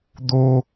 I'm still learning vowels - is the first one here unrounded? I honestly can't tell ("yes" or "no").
no